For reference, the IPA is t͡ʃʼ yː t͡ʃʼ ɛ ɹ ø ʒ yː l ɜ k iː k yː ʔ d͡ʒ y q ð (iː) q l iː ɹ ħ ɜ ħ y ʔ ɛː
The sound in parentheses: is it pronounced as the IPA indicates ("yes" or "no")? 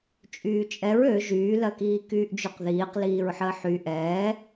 yes